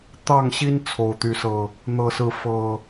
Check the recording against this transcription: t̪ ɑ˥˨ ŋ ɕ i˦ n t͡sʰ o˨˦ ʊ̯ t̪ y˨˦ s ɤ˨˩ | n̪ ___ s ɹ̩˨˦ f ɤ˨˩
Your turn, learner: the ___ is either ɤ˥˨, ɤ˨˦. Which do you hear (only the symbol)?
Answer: ɤ˨˦